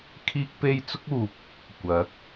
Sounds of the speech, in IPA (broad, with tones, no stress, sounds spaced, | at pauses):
kʰ iː˥ k̚ p e˥ j t͡s ʊ˥ k̚ uː˨ p̚ | kʷ ɐ˨˥ k̚